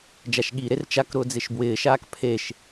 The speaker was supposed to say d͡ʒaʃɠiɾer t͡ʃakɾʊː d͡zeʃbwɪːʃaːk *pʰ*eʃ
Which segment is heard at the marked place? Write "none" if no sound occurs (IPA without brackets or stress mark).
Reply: pʰ